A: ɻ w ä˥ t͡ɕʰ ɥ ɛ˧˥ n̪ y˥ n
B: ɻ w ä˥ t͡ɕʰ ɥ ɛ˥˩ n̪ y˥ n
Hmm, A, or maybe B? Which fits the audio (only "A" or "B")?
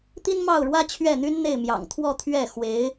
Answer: B